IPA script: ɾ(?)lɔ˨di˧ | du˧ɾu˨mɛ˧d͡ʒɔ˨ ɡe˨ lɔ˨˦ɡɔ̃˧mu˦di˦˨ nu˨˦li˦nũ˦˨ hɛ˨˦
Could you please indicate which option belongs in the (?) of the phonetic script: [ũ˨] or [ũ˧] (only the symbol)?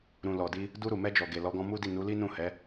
ũ˨